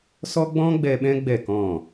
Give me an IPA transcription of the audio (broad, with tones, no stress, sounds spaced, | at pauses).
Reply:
s ɔ˦ ɡ͡b ɔ̃˦ ɡ͡b ɛ˧ ɓ ɛ̃˦ ɡ͡b ɛ˦˨ k ɔ̃˦˨